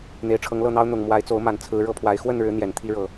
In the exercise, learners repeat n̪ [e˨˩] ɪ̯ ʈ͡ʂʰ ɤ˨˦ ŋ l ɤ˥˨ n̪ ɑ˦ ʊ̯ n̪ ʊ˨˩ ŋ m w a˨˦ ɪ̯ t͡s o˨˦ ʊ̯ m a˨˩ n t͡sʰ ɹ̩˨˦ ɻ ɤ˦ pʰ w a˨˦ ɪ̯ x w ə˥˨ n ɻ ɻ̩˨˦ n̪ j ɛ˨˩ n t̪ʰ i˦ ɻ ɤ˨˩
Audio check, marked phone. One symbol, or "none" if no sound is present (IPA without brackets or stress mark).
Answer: e˨˩